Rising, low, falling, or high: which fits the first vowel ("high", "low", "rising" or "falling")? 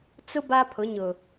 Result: high